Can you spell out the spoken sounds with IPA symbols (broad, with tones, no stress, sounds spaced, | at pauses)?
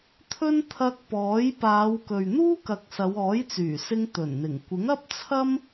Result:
t̪ʰ ɵ˥ n t̪ʰ ɐ˧ k̚ p ɔː˨˥ j p aː˨˧ w k ɵ˨ ɥ n̪ uː˥ k ɐ˨ k̚ s ɐ˨˧ w ɔː˨˥ j t͡s yː˨˩ s ɪ˧ ŋ t̪ ɵ˨˩ n n̪ ɪ˨˩ ŋ kʷ ɪ˨˥ ŋ ɐ˥ p̚ t͡sʰ ɐ˥ m